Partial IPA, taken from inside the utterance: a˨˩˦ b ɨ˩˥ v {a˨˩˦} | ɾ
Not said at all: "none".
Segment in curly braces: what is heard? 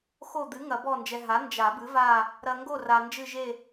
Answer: a˦˨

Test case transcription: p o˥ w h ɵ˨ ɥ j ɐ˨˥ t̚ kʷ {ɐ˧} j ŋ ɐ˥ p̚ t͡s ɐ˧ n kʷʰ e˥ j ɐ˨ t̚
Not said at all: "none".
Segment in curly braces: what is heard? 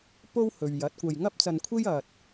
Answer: ɐ˨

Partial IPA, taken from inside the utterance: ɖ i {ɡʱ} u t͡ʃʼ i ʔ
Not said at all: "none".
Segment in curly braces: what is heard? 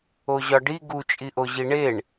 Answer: ɡ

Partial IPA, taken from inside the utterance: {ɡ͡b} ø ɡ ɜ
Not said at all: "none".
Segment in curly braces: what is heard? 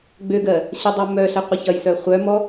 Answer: ɡ͡b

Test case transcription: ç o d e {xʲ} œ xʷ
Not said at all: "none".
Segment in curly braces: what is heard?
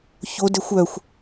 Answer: xʷ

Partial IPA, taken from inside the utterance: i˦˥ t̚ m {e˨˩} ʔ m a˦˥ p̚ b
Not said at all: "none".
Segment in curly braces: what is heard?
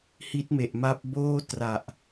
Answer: e˨˩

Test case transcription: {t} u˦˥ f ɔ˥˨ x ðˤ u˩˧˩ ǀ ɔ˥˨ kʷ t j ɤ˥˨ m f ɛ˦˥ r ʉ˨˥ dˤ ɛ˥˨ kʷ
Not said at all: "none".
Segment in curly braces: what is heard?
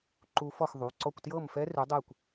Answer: ǃ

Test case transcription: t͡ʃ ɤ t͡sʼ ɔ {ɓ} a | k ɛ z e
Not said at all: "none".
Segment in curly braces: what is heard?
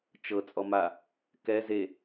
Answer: m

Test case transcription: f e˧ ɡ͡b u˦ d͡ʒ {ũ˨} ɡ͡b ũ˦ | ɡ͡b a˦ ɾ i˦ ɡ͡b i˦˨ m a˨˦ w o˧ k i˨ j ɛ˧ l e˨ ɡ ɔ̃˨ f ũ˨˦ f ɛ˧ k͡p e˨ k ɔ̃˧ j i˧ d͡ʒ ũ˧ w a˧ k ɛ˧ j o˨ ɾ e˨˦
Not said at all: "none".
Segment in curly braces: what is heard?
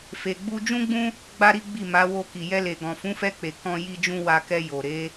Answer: ũ˦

